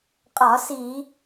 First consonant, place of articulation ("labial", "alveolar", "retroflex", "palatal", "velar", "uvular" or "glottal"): uvular